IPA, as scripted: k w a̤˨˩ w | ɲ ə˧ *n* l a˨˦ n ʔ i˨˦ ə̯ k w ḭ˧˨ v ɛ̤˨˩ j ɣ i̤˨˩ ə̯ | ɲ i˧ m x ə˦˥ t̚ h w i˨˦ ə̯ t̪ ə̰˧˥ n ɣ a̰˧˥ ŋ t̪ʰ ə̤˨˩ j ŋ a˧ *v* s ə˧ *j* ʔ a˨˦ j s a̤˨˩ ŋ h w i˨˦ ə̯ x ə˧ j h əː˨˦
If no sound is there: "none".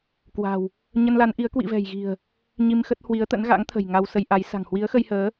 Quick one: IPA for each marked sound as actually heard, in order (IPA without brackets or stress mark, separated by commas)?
n, w, j